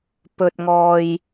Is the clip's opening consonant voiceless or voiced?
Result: voiceless